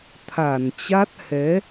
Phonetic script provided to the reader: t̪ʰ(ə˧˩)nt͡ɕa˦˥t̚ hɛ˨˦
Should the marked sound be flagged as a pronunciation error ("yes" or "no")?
yes